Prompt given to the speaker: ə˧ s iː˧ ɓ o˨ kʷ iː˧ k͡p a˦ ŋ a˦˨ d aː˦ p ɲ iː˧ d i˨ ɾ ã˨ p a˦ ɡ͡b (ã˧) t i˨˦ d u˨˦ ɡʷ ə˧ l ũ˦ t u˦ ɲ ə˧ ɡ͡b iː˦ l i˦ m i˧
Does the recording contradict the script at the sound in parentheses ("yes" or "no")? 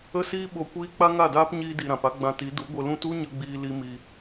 no